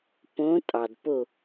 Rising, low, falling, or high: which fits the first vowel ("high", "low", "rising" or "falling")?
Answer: rising